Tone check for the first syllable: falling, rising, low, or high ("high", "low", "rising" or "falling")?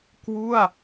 falling